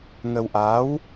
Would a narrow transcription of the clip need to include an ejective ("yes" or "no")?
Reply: no